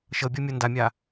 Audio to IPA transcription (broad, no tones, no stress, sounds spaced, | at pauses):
ʃ ɤ bʲ ɤ mʲ ɤ n d a mʲ a